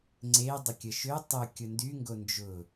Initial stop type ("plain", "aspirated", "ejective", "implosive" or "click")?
click